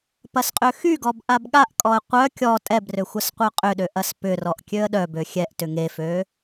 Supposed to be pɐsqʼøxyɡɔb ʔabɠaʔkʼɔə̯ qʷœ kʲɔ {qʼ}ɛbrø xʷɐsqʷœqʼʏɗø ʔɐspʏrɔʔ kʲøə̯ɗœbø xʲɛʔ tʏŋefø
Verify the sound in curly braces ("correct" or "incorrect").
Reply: incorrect